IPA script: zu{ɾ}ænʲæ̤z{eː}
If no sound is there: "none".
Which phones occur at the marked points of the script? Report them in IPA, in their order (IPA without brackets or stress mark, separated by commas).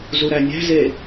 ɾ, e